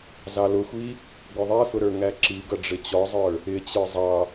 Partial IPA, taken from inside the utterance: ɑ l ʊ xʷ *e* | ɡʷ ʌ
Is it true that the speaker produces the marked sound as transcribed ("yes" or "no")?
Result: no